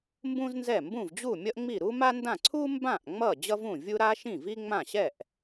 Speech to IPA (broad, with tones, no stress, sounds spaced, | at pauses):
m b ũ˥ z n z ɛ˥˩ m b ũ˥˩ v d͡ʑ u˥˩ mʲ ʌ˥ ʔ ŋ͡m i˥˩ ɾ u˥ m a˥ n d ã˥˩ ǀʰ u˥ m b ã˥˩ ʔ ŋ͡m ʌ˥˩ d͡ʑ ʌ˥ v ũ˥˩ vʲ u˥ ɾ a˥ ʃ ĩ˥˩ v i˥ ŋ͡m ã˥˩ ɕ ɛ˥˩ ʔ